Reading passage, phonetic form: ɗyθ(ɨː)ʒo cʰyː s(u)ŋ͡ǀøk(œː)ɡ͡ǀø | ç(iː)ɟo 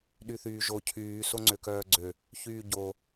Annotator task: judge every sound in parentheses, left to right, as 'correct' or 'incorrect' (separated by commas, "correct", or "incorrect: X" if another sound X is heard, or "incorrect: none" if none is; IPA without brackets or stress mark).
incorrect: yː, incorrect: o, correct, incorrect: yː